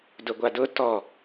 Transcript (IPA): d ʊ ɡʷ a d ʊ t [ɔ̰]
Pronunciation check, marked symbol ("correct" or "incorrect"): incorrect